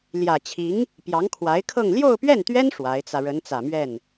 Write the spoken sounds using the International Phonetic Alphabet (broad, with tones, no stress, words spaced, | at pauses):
ljä˨˩t͡ɕʰi˧˥ŋ | pjɑ˧˥ŋkʰwa˧˥ɪ̯kʰɤ˥˧ŋ ljo˥˧ʊ̯pɥɛ˥˩nt̪ɥɛ˥n ʂwa˧˥ɪ̯t͡sä˧ ɻə˧˥nt͡sä˨˩mɥɛ˥˩n